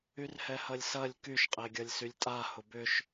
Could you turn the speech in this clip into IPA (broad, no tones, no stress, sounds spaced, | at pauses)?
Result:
y r h ɛ h ɐ lʲ s ɐ lʲ k y ʃ qʼ e ɡʲ ɐ lʲ s y lʲ tʼ a h ʊ b ʏ ʃ